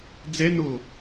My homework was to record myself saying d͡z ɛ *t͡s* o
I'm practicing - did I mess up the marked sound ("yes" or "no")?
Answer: yes